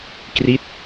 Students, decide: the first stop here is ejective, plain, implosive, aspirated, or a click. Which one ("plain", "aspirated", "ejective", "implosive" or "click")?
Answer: plain